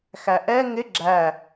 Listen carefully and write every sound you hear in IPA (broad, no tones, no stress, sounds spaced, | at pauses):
x æ ʔ ɛ ŋ ɪ ɡ͡ǁ æ